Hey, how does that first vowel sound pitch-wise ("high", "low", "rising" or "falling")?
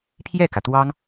falling